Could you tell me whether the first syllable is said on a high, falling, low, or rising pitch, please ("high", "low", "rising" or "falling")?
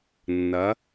rising